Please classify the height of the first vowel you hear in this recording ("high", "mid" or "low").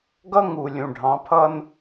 mid